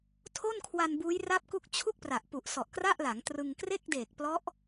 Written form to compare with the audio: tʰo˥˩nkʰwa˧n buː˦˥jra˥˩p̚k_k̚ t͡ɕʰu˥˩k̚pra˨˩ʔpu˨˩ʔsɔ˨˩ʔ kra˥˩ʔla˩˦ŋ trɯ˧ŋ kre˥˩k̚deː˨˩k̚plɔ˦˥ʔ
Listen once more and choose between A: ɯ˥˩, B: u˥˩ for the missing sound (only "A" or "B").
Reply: B